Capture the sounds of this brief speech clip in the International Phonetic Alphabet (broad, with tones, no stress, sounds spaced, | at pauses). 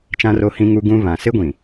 t͡ʃ ã˦ r o˦ h ĩ˦ ŋ u˦ ɡ ũ˦ β ã˨ s ɪ˦ ɡʷ ĩ˨